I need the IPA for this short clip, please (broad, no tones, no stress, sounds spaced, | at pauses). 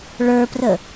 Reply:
ɭ ə˞ p r ə